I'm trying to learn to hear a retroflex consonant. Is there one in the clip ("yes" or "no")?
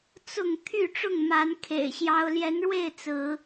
yes